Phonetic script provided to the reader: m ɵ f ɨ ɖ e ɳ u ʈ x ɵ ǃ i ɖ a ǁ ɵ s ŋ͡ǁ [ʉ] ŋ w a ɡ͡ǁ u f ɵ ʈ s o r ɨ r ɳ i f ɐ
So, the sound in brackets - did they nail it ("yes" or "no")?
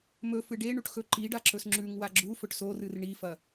yes